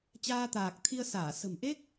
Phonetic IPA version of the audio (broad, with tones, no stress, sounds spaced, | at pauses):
t͡ɕ aː˧ t̪ aː˨˩ k̚ t̪ʰ i˧ ə̯ s aː˧˩ s ə̤˨˩ m ʔ e˦˥ k̚